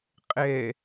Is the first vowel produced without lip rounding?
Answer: yes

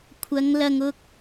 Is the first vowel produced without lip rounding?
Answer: yes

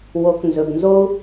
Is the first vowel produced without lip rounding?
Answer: no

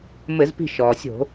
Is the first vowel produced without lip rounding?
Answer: yes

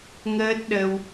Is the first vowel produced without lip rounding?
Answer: yes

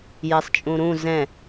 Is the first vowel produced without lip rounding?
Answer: yes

